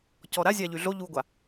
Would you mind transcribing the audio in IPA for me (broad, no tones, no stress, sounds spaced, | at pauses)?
c ɔ ɾ a zʲ a ʎ y ɮ o ʎ u ɡʷ a